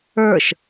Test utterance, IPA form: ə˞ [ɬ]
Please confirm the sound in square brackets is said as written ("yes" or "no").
no